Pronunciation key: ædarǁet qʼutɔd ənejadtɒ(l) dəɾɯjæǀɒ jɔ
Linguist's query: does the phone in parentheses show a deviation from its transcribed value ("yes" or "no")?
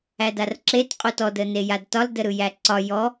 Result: no